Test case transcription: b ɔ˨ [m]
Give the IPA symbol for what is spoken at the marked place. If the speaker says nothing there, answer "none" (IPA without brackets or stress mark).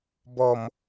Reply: m